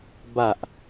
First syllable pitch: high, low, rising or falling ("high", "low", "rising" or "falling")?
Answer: low